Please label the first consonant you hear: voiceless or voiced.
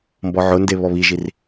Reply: voiced